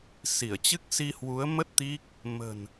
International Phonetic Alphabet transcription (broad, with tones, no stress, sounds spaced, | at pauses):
s i˧˩ ə̯ t͡ɕ ɨ˦˥ k̚ s i˧ h w u˨˦ ə̯ m ə˦˥ t̚ t̪ i˦˥ k̚ | m ə̤˨˩ n